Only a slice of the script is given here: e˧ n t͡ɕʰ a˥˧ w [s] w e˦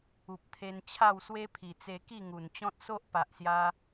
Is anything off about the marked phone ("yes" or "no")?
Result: no